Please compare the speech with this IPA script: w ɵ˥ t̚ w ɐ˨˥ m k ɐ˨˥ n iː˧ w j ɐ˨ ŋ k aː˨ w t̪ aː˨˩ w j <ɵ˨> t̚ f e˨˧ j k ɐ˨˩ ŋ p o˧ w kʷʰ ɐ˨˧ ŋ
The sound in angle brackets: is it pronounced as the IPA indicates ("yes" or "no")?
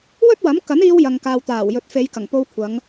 yes